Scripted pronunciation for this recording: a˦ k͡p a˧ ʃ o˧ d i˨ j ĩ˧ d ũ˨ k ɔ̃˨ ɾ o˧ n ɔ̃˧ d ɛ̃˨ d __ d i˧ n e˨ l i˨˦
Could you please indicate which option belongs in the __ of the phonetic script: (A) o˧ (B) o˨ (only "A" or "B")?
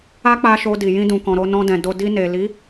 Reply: A